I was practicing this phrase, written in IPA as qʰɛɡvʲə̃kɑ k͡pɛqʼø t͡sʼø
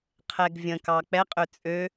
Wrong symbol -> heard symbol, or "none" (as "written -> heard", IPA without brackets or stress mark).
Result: none